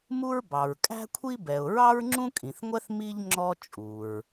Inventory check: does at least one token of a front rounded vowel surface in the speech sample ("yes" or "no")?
no